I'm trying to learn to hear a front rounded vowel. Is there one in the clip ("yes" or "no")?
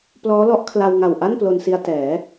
no